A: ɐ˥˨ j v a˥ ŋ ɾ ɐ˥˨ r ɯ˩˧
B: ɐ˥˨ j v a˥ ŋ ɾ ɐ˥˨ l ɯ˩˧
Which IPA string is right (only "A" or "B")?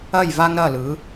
B